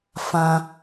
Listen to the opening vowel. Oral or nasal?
nasal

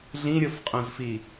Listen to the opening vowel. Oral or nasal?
nasal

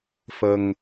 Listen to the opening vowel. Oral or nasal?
oral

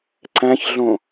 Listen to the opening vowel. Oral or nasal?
nasal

